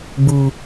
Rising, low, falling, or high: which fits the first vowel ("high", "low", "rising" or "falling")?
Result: low